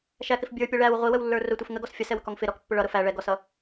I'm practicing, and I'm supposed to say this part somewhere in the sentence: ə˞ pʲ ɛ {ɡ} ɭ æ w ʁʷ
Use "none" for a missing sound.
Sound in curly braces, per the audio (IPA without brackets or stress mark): none